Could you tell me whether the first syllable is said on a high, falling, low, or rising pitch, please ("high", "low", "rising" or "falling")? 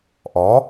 rising